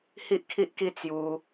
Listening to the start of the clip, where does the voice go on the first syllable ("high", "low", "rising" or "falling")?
high